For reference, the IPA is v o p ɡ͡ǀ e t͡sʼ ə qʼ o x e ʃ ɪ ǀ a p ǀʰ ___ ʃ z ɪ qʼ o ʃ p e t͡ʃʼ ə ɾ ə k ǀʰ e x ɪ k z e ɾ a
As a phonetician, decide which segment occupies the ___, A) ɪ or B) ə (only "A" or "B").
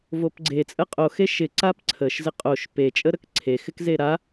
B